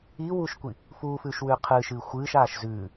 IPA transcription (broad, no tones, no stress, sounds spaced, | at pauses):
iː w uː ʃ kʷ i | f uː f ʉː ʃ w ʉː qʰ ɨː ʃ ɨː xʷ ɨː ʃ aː ʃ z ʉː